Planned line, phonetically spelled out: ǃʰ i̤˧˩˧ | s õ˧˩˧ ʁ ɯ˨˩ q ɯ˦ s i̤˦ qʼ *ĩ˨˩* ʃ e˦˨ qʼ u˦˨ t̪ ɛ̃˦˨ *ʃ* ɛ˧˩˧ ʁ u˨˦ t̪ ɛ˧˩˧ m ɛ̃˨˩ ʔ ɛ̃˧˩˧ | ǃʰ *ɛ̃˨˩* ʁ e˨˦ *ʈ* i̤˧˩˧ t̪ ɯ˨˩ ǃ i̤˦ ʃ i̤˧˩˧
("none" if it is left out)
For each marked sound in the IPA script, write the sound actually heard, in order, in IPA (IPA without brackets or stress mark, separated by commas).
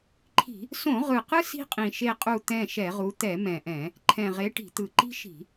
ĩ˨˩, ʃ, ɛ̃˨˩, ʈ